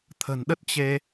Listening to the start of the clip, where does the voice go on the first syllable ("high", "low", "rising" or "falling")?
low